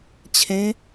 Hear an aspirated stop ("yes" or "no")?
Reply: yes